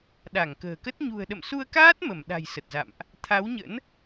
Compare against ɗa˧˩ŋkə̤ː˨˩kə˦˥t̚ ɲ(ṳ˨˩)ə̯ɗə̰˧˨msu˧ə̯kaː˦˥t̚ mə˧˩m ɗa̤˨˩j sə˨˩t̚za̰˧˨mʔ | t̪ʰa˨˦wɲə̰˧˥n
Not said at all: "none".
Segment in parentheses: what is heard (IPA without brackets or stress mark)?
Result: ṳ˨˩